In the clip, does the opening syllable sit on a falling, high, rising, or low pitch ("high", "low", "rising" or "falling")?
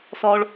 high